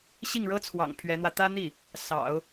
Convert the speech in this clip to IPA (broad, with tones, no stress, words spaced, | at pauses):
ɕi˥˩ŋɻɤ˥t͡sʰwɑ̰˨˩ŋ pʰɥɛ˧˥n̪wä˧ t̪ä˥n̪i˥˩ | sɑ̰˨˩˦ʊ̯